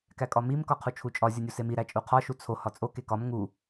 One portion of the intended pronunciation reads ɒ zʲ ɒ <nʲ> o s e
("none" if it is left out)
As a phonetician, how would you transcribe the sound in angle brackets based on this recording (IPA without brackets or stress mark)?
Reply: nʲ